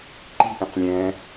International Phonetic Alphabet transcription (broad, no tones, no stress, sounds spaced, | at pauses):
ǃ i̤ ʔ ĩ q lʲ ɛ̃